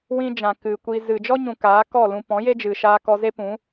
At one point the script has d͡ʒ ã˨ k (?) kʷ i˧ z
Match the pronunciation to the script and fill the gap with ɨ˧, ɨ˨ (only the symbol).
ɨ˨